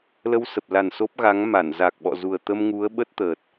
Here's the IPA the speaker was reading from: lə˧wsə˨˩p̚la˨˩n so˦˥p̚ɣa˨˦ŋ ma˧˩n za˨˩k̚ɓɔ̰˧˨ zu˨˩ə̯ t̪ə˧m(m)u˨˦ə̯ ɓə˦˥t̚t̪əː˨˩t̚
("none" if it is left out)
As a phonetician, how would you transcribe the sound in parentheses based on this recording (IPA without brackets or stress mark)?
ŋ